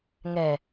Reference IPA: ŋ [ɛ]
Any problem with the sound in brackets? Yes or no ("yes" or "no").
no